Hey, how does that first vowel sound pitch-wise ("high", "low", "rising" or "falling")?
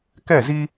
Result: falling